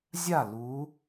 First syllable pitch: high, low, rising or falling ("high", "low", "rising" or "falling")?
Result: falling